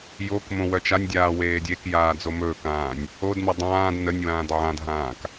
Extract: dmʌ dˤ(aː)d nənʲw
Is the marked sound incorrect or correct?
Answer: incorrect